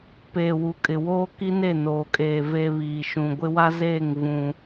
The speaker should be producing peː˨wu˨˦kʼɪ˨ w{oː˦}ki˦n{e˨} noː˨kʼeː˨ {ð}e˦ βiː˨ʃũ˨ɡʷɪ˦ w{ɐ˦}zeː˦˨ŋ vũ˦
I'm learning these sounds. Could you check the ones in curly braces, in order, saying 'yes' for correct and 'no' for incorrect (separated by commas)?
yes, no, no, no